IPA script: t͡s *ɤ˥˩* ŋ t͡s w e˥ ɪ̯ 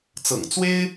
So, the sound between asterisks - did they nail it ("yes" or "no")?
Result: no